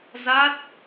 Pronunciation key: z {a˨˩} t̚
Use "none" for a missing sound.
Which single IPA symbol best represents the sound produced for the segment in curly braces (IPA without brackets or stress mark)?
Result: a˦˥